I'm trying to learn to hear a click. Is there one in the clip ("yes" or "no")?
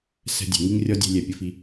no